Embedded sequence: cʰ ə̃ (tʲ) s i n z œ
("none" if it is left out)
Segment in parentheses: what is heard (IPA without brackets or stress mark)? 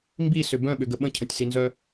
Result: tʲ